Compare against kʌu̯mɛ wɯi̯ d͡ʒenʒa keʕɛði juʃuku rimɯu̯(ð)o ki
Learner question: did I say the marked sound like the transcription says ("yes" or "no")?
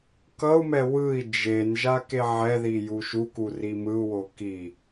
no